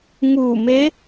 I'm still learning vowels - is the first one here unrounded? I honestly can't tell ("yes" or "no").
no